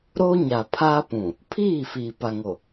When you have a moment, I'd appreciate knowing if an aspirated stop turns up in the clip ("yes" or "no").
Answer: yes